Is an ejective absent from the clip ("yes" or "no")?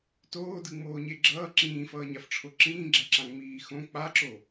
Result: yes